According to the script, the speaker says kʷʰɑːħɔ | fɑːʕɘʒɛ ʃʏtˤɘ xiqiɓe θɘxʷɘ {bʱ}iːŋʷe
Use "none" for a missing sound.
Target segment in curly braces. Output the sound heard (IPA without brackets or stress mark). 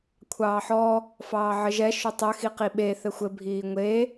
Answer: bʱ